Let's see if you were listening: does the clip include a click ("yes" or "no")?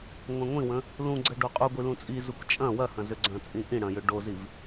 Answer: yes